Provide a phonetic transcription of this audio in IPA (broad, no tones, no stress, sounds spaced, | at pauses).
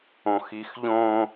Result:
õ x i x ʎ õ